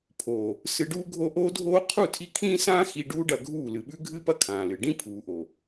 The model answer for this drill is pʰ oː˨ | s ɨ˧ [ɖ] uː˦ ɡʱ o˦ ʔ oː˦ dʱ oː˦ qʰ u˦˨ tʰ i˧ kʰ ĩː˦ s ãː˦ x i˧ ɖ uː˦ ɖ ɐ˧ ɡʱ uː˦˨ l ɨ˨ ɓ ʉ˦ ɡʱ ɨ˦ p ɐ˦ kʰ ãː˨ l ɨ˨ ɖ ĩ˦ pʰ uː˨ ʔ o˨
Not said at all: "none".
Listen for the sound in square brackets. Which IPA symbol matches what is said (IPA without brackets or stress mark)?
ɖ